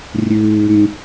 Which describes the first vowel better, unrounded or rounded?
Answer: rounded